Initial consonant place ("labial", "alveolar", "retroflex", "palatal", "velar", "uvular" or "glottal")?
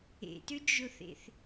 alveolar